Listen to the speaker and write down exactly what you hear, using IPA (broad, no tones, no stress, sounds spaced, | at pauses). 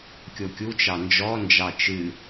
kʲ o kʲ u t͡ʃ ɑ n d͡ʒ ɔ n d͡ʒ ɑ t͡ʃ ɨ